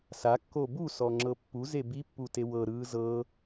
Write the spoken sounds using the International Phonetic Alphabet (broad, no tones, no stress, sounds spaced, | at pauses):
s a kː o b u s ɔ ŋ͡ǁ ɤ pː u z e b i pː u t e w ɤ ɾ ɯː z ɤ